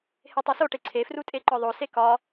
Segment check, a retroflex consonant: present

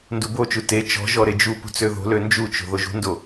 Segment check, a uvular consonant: absent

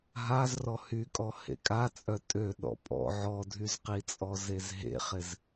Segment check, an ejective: present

